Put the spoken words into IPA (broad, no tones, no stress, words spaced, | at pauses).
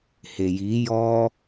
heji jɔ